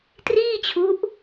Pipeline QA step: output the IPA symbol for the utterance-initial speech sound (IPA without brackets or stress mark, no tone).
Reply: t